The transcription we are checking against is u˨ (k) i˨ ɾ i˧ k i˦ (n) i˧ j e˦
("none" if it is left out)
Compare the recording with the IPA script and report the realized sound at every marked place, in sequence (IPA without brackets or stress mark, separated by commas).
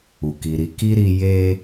k, ɾ